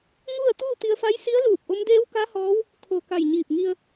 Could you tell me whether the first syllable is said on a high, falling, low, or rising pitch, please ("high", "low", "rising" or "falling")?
falling